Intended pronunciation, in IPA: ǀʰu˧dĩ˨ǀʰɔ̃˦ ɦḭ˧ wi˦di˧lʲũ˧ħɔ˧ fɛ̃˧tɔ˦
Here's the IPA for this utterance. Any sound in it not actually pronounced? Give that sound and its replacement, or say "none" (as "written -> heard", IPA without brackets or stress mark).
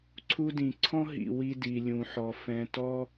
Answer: none